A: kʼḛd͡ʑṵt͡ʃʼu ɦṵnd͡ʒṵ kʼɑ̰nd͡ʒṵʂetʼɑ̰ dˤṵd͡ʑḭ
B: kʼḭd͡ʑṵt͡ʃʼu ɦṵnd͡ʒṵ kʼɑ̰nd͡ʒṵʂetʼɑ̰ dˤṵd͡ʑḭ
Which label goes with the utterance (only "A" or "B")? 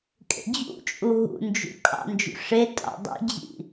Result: A